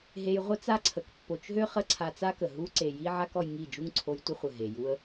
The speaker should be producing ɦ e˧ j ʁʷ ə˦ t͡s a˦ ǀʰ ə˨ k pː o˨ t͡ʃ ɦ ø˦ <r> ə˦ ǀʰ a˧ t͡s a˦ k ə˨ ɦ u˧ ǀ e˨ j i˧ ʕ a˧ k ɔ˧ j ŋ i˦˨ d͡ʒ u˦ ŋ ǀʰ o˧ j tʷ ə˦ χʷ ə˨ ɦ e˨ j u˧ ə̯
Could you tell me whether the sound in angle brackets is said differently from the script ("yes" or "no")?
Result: yes